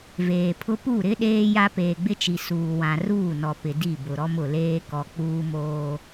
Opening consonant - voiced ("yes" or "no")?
yes